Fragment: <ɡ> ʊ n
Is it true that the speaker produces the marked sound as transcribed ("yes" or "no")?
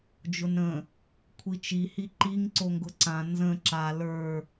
no